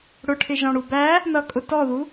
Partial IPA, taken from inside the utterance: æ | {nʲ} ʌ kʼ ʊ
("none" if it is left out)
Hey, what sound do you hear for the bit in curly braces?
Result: n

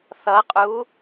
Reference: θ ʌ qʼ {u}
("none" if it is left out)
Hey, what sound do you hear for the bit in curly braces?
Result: u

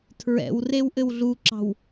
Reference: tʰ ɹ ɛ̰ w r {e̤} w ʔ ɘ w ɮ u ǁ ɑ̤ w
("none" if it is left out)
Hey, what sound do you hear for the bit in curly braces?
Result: e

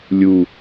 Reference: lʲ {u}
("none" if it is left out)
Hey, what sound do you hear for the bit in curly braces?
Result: u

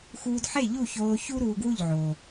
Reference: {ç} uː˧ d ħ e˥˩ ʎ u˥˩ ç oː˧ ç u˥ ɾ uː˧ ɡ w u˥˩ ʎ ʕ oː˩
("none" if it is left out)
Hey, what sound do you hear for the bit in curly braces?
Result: x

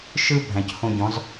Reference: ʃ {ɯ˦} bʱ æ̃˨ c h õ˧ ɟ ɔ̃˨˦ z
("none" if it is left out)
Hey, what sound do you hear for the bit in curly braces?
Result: ɯ˦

